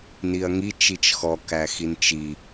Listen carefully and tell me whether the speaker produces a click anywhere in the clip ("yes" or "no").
no